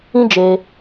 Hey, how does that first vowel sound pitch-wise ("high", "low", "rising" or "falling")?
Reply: high